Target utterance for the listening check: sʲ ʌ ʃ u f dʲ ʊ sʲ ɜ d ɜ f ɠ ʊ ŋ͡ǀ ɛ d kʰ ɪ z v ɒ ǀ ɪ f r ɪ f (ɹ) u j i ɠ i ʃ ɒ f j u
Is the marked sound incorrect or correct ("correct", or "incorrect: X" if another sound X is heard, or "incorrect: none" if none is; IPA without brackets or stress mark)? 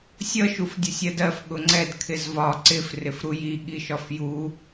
incorrect: ɾ